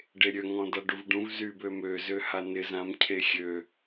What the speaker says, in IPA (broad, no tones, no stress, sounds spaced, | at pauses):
ɖ e ɾʲ ø ŋ ɔ̃ d a ɖ u v ɖ ũ v z y b ø m ø z ø h a n ɪ z ã m cʰ e xʲ ø